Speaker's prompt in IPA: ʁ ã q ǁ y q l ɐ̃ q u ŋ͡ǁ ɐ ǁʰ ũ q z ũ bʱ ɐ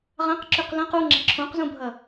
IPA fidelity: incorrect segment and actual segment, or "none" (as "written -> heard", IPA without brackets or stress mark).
none